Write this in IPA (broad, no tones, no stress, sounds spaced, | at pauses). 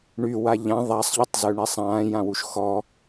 ɳ y w a ʎ ã ðˤ a sˤ ʎ y tˤ z ø ɳ ɛ sˤ ãː j ã w u ʃ x ɔ